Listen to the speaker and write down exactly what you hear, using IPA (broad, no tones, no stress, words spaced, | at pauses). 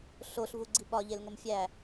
ɬoɬvuɡ͡ǀi ɓɒʎelŋom fʲæ